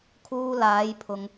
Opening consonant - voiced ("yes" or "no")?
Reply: no